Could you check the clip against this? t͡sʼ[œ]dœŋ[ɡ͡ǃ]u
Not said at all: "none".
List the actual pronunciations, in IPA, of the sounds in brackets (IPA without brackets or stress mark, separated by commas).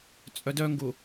œ, ɡ